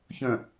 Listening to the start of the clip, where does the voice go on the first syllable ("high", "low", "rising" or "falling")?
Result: low